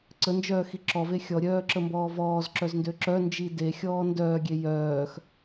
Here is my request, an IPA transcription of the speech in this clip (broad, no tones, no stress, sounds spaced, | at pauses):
ǀ ə n d͡ʒ œː x i ǁ ɔ v e xʲ ɔ ɾʲ œː ǁ ə m b ɔː v ɔː z ǁ œ z n d ø ǁ œ n d͡ʒ i d e xʲ ɔː n d œː ɡʲ e j œː x